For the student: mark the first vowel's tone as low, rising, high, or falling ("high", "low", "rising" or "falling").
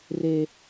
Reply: low